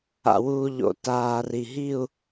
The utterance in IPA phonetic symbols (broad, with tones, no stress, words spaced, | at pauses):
a̰˩wuː˩ʎo̰˩ taː˩ ri˩ɦi˦˨u̯